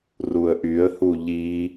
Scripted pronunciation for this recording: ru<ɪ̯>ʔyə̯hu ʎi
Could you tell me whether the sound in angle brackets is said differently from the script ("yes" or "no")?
yes